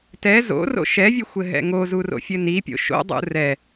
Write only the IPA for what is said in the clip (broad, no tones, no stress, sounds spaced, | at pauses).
t ɛ z o̰ r o̰ ʃ ɛ vʲ ɘ xʷ ɘ ɦ ɛ̰ ŋ o z u r o̰ fʲ ɘ n i pʲ o̰ ʃ o̰ dˤ ṵ r ɛ